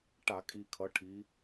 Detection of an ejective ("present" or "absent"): present